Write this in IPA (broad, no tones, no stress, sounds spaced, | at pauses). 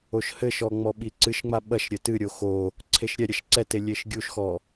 o ʃ h ɘ ʃ ɔ ŋ͡m ɔ ɓ i ǀ ɨ ʃ ŋ͡m a ɓ ɐ ʃ ɾʲ ɘ t ɨ ɾʲ o x o | ǀʰ e ʃ ɾʲ ɛ ɾʲ ɐ ʃ ǀ ɛ t e lʲ e ʃ ɡʲ u ʃ x ɔ